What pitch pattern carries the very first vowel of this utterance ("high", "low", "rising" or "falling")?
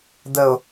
low